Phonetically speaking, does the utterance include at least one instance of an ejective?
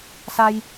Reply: no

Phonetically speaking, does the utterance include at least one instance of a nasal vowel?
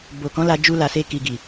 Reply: yes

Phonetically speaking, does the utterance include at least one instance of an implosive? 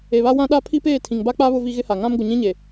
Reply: yes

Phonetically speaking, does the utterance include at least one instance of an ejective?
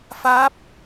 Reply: no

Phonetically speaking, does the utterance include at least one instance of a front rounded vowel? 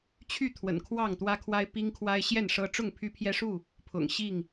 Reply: yes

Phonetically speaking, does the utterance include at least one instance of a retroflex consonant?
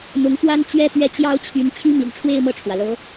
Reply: yes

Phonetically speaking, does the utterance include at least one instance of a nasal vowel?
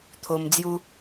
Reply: no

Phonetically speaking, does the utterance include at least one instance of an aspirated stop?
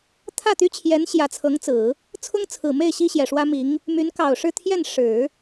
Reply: yes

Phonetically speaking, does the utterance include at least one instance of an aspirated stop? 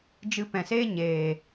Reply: no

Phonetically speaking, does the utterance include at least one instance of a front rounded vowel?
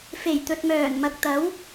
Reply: yes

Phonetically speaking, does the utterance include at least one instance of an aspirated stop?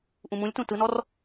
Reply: no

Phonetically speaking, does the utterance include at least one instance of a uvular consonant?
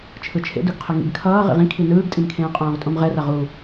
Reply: yes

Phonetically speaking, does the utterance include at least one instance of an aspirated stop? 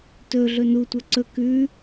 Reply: no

